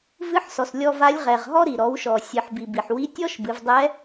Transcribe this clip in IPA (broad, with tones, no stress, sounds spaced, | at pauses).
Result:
v ɨ˧˥ ħ s ɔ˩ s lʲ ɔ˧ v a˧˥ lʲ ʁ ɛ˩ ʁ ɦ ɔ˥ ɾ i˩ ɾ ɔ˩˧ w ʃ ɔ˩ sʲ ɨ˩ ħ b i˩ b i˩ ħ w i˧˥ tʲ ɔ˥ ʃ b ɨ˩˧ v dˤ ɛ˧˥